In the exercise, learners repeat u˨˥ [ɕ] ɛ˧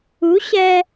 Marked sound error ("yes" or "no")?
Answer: no